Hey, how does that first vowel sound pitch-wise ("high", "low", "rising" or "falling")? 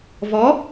rising